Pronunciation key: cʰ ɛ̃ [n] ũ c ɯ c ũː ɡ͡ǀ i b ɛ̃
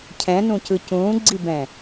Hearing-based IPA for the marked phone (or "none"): n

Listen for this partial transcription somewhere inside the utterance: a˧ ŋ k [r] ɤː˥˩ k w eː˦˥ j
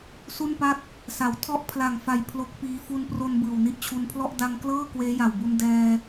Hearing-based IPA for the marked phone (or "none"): l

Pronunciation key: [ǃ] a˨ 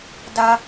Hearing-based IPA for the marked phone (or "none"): d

